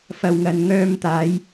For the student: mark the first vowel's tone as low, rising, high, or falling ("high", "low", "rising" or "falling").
low